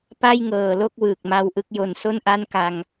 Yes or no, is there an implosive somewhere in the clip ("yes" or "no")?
no